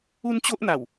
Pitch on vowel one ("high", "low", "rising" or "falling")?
high